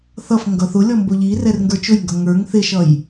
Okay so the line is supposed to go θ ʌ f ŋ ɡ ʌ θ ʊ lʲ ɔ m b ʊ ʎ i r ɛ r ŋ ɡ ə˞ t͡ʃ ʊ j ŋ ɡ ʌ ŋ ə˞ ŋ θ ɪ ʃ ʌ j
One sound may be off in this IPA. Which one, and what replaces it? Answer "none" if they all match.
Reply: none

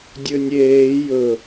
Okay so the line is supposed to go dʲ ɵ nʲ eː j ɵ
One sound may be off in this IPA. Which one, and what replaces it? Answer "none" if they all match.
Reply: none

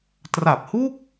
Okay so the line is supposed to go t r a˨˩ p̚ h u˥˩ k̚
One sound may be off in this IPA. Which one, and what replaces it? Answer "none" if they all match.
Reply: none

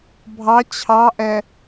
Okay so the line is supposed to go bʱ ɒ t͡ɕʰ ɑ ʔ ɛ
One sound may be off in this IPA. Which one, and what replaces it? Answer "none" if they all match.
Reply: ɒ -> ɑ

